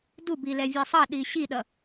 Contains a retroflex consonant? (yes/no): no